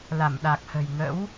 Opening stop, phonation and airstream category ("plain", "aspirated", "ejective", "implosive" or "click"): implosive